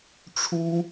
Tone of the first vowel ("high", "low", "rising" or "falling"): high